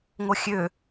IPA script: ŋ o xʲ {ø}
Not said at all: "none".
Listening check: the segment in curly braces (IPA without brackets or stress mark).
ø